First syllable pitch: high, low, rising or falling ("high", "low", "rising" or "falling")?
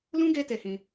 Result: high